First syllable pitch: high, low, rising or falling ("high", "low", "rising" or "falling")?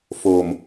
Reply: low